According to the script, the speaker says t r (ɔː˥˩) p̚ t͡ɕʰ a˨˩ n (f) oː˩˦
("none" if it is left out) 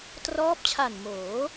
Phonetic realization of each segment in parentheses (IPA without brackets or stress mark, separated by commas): ɔː˦˥, m